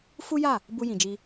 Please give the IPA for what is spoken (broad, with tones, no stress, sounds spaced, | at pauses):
f u˦ j a˦˨ | b u˧ j ĩ˨ d͡ʒ i˧